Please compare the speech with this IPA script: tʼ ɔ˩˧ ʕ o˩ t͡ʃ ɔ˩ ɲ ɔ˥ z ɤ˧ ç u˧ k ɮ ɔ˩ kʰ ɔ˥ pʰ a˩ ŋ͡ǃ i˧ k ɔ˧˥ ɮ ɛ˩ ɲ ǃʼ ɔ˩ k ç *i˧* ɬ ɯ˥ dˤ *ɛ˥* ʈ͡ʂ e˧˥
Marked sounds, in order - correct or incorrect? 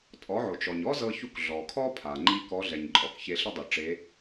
incorrect, incorrect

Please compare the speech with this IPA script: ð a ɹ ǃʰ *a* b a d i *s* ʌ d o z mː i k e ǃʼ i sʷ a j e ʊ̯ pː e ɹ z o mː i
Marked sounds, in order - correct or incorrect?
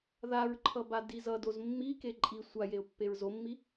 incorrect, incorrect

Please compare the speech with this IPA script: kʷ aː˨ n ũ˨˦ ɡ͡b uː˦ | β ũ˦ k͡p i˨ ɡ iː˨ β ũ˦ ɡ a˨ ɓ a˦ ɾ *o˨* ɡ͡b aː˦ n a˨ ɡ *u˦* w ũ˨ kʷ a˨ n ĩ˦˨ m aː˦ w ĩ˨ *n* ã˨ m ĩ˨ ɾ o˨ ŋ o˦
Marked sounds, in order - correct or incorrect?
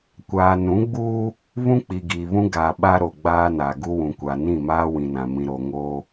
correct, correct, correct

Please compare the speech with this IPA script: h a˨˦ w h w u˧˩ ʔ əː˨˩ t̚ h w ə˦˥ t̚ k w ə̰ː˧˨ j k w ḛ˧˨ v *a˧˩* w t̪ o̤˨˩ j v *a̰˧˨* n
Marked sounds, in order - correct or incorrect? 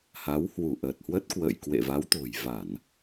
incorrect, incorrect

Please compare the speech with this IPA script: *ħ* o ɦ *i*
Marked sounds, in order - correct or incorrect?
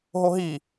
incorrect, correct

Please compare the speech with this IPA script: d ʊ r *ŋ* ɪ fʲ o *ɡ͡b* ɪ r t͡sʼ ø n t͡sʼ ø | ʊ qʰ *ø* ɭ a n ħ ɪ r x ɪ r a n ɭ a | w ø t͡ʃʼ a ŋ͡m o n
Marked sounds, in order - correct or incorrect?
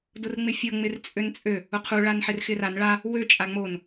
incorrect, incorrect, incorrect

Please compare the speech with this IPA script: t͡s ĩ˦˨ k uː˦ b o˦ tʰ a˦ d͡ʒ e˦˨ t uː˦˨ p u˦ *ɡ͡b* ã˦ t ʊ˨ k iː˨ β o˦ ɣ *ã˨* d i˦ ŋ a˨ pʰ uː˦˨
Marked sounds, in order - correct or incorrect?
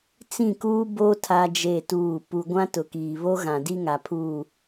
incorrect, correct

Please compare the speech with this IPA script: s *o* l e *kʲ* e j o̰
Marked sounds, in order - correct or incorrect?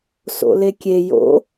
incorrect, correct

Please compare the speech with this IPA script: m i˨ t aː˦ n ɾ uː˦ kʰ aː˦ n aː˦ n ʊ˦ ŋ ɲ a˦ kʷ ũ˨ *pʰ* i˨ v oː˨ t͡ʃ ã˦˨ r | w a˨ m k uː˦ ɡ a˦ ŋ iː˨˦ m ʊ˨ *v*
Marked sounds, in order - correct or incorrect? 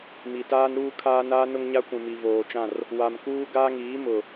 incorrect, incorrect

